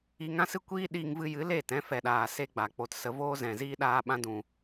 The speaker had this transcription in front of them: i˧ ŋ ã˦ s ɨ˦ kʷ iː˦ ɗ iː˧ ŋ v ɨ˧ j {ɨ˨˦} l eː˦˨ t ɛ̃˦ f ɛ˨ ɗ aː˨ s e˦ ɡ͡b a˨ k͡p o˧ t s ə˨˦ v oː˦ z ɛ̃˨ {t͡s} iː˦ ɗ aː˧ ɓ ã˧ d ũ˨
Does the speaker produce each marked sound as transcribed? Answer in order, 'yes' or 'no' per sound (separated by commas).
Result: yes, no